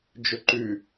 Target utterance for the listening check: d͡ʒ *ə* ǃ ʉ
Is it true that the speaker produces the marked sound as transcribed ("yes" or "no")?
no